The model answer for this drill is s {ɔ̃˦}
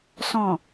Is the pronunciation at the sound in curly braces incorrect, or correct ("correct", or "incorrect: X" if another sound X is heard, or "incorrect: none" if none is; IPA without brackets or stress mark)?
incorrect: ɔ̃˨